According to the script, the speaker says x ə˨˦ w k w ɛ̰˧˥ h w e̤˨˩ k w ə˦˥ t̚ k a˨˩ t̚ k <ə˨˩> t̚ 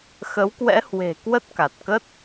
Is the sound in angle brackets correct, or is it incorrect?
incorrect